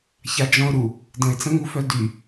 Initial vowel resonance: oral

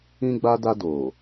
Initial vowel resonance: nasal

